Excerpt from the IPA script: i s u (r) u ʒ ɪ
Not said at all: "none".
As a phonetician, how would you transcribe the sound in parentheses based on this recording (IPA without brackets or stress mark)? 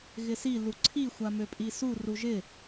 r